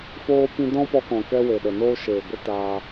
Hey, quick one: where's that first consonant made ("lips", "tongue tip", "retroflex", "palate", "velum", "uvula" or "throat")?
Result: lips